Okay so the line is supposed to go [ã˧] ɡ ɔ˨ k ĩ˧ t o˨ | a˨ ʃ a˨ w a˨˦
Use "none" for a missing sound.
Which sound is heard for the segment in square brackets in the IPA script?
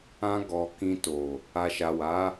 ã˧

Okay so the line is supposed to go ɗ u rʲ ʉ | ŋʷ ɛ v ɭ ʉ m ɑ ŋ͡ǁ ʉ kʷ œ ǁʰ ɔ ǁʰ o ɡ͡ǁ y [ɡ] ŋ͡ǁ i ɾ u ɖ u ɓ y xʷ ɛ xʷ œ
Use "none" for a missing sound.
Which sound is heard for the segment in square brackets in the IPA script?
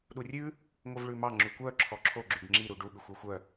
ɡ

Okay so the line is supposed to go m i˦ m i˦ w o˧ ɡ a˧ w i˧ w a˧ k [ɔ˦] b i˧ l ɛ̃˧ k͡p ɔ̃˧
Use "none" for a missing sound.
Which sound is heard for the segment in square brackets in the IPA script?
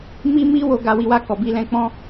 ɔ˨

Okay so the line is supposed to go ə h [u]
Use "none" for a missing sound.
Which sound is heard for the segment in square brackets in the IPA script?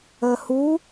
u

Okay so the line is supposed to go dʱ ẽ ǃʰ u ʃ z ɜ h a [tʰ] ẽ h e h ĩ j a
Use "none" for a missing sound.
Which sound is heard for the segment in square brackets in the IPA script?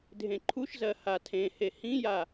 tʰ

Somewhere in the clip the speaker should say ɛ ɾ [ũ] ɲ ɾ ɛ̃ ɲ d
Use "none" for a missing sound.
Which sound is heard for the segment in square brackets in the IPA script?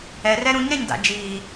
ũ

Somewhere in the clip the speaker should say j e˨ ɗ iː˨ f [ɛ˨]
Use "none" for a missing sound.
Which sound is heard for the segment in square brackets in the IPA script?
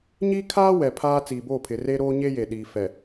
ɛ˨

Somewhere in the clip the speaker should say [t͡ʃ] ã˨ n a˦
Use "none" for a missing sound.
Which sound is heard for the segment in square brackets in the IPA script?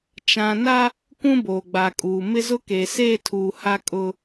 t͡ʃ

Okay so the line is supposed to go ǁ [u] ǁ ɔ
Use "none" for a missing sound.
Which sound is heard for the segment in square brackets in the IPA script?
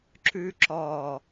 ʉ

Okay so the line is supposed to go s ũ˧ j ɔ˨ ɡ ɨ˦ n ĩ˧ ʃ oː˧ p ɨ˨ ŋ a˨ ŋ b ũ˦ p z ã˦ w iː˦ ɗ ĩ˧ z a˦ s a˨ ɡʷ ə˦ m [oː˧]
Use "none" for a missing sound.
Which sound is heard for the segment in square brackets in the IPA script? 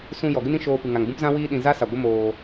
oː˧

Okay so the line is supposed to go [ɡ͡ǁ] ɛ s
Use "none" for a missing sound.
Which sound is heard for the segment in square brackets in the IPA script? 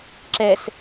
ǁ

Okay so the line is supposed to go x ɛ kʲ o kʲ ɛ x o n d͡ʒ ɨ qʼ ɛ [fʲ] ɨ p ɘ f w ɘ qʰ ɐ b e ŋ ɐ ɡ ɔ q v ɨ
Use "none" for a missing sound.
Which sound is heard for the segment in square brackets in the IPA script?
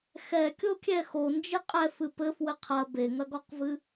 f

